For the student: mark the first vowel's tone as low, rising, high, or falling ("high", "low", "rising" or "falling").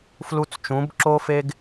high